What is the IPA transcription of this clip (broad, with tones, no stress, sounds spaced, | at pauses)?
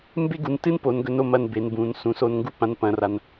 m b e˥ ɡ u˩˧ n t ɨ˥ n p o˩˧ n ɡ ɵ˧ n o˥˧ m ɐ˧ n b e˩˧ n b ũ˩˧ n s ũ˩˧ s o˧ n ŋ ɡ u˥˧ p ã˧ n p ɐ̃˧ r a˧ n